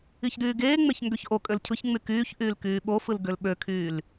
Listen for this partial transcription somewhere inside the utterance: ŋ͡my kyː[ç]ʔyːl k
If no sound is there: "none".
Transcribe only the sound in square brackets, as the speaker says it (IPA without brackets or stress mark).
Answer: ç